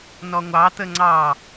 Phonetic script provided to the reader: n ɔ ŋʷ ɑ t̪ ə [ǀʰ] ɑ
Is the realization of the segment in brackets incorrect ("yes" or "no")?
yes